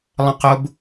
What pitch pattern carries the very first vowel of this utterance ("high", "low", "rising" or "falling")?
high